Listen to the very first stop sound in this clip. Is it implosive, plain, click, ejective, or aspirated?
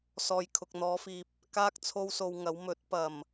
aspirated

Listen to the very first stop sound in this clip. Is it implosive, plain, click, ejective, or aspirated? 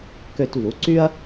plain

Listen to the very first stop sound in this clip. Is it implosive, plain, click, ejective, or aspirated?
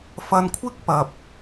aspirated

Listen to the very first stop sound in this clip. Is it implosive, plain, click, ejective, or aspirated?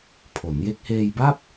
aspirated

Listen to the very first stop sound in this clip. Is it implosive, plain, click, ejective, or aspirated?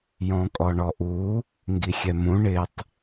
ejective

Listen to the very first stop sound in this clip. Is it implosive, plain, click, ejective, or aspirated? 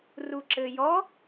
click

